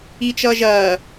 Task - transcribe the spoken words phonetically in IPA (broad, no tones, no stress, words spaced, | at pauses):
it͡ʃʌːʒɐː